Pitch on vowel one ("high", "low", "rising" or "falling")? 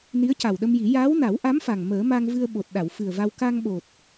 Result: rising